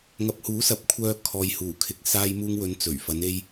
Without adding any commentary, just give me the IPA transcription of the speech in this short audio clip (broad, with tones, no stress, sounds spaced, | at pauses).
ŋ ɐ˨ p̚ h uː˨˥ s ɐ˨˥ p̚ kʷʰ œː˧ kʰ ɔː˨ j h uː˨˩ kʰ ɪ˨ k̚ s aː˧ j m uː˧ ŋ w ɵ˨˧ n t͡s ɵ˨˩ ɥ f ɐ˨˧ n e˧ j